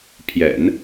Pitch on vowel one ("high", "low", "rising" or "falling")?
low